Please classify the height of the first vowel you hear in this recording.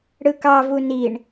high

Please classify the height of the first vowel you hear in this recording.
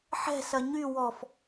mid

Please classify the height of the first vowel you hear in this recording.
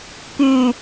high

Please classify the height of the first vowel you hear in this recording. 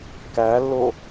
low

